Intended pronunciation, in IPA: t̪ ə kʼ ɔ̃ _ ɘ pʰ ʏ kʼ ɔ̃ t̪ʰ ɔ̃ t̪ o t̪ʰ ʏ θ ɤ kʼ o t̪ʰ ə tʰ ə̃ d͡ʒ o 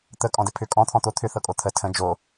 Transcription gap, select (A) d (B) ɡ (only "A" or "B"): A